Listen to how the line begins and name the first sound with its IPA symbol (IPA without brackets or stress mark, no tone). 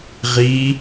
ʁ